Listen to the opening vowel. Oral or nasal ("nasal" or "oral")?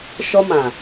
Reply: oral